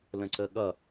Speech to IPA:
l ə̃ ǀ ə ɠ ʌ

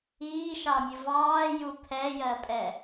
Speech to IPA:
iː ʃ ɑ mʲ ʊ v ɑː j u pʰ ɛ j ɜ pʼ ɛ

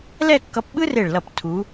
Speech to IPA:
l ɛ˥˧ kː ʌ˧ p ɓ ɯ˥ r e˧˩ ɭ l ʌ˧˩ p tʰ u˩˧

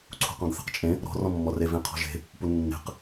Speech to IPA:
ǀʰ ṳ q ɔ̃ ɡ θ e̤ q t͡ʃʼ ẽ | ɾ ɔ̤ r ɔ̃ mː ɔ r e v ẽ qʰ ɔ̤ ʒ e̤ | p u nː e̤ q

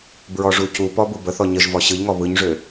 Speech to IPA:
b ɹ ɔ ʐ u c u p ɔ b u b ə θ ɔ ɲ ə ʒ v ɔ ɕ ɯ ʎ ŋ ɔ β ɯ ɲ ʐ ø

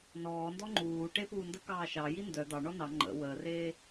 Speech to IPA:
n ɔː n d ɔ ŋ͡ǃ uː ʈ e p uː n d ə k ɑː ʃ ɑː j i n d œ d̪ ɑ ɳ ɔ n ɑ ŋ͡ǃ ə̰ w əː r eː

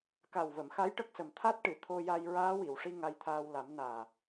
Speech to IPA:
k a˨˩ w v ə˨˩˨ m x a˧˥ j ʈ ə˦˥ k̚ s ə˨˩ m t̪ʰ a˦˥ t̚ ʈ ɨ˨˩˨ t̪ʰ o˧ j a˧ j ɹ aː˧˥ w i˨˩˨ w ʂ i˧ ŋ a˧ j t̪ʰ aː˧ w l a˨˩˦ m n aː˨˩

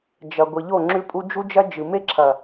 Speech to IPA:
d͡ʒ ɐ˨ ɡʷ i˨ ʎ o˦˨ ŋ͡ǁ ʉ˦ pʼ u˦ d͡ʒ u˦ d͡ʒ ɐ˦ d͡ʒ ɨ˨ m e˦ ǁʰ ɐ˨

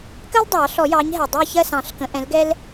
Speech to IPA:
k ɜ˥ l dˤ ɑ˨˩˦ ɬ ɔ˨˩˦ j ɑ˨˥ ɲ ɦ ɛ˨˩ dˤ ɛ˦˨ ç ɜ˦˨ s ɑ̃˨˩˦ ɬ k ə̃˨˥ ʔ ɛ̃˨˥ l ɡ ɛ˥ l

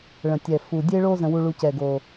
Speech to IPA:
ɭ ə̃˨˩ tʲ ɛ˨˩ f u˨˩ dʲ e˧ ɭ o˧ z ə̃˧ w u˧ ɭ u˧ c ɛ˨˩ ɡ o˨˩

